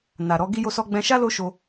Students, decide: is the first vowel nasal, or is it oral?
oral